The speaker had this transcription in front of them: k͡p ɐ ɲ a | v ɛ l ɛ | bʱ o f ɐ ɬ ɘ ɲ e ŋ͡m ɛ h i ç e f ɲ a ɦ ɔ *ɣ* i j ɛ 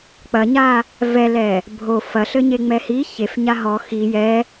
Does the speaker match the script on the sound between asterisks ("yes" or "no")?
no